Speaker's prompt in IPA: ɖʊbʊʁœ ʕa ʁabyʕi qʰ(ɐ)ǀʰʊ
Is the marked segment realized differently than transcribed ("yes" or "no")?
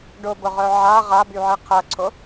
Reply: no